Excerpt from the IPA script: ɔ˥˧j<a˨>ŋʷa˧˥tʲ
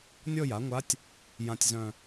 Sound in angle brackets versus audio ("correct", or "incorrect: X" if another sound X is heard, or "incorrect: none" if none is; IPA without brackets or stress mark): incorrect: a˩˥